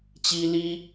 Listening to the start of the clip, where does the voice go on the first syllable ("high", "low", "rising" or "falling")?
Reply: high